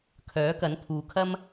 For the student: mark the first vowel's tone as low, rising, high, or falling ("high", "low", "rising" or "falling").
rising